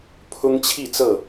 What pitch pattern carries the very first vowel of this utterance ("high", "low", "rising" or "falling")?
high